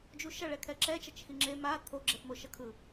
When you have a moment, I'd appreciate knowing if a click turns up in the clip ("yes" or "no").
yes